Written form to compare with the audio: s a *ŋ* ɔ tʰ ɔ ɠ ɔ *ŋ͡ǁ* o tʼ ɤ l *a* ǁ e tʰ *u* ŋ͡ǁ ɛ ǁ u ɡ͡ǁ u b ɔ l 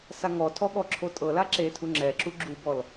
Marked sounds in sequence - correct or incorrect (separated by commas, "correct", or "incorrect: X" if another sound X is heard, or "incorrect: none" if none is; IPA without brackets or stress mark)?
correct, incorrect: ǁʰ, correct, correct